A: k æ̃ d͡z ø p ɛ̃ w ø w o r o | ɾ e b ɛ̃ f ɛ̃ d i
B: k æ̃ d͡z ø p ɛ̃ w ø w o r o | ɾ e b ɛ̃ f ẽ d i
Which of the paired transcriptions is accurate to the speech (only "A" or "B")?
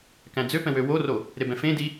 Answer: B